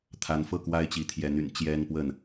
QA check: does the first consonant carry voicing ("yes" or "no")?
no